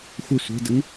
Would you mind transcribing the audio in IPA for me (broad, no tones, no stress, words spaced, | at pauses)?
xʷɪ sʷe̤dəŋ